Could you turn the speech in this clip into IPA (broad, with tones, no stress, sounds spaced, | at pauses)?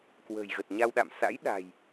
k w ə̤ː˨˩ j ɣ ə˨˩ t̚ ɲ a˧ w ɗ a̰˧˨ m s a̰˧˥ j ɗ a̤˨˩ j